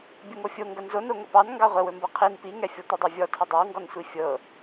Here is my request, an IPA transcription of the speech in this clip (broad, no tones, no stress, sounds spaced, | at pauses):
bʲ ɵ ŋ o fʲ o ŋ ɡ ɐ n z o n o ŋ ə p ɑ n ŋ ɡ ɑ ʁʷ ɛ w ɵ m b ɤ qʰ i n p i ŋ ɛ fʲ ɔ tʷ i dˤ a vʲ ɔ tʰ ɐ dˤ ɑ w ŋ ɡ ɔ n sʷ i fʲ ɤ